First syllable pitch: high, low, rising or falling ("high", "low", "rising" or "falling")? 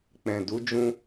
low